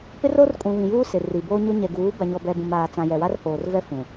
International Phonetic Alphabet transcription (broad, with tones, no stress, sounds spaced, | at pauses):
p ɪ˦ r o˦ r kʼ ũ˨ β ĩ˨ j uː˦ s ɪ˨ r i˨ b oː˦ ɲ o˦ ɲ ɛ˨ ɡ uː˨˦ b a˨ ɲ ɔ˨ b ɛ˨ b ũ˨ m aː˨ t͡s ã˨ j ɛ˨ w a˦ r h oː˨ r v ɛ˦ f ũ˨